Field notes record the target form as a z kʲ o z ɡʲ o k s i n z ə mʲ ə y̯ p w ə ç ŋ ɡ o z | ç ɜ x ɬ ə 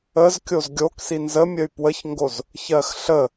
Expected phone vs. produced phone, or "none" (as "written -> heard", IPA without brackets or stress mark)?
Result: a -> ə